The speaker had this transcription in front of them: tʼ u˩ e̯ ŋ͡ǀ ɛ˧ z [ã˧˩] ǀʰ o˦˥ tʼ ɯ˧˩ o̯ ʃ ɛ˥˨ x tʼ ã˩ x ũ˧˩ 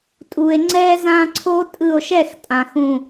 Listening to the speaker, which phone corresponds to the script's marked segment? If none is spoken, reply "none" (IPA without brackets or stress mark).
ã˧